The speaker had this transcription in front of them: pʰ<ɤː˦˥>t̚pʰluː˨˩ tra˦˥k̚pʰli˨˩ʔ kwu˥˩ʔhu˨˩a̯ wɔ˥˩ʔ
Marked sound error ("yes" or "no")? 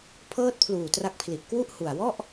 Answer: no